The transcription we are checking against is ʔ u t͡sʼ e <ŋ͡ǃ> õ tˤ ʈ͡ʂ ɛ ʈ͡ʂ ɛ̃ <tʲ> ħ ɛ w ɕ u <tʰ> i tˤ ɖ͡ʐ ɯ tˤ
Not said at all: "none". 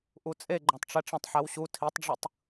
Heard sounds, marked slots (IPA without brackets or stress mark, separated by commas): ɡ͡ǃ, tˤ, tʰ